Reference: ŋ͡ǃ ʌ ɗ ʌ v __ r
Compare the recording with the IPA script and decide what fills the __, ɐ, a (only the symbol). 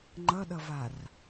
a